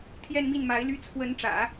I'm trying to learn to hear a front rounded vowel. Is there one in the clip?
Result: yes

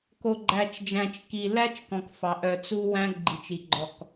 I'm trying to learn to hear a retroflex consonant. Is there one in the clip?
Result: no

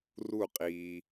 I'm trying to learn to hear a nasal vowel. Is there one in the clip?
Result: no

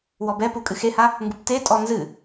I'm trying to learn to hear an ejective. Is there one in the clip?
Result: yes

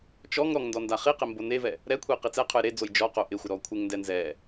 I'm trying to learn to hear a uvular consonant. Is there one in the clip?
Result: yes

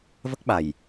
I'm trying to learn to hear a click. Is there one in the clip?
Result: no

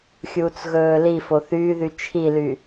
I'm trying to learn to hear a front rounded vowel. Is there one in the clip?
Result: yes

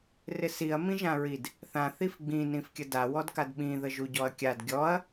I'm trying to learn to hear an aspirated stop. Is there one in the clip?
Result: no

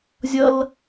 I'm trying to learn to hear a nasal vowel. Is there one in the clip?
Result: no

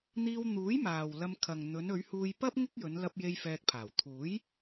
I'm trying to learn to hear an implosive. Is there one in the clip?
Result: no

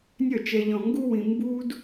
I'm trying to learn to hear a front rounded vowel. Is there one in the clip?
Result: yes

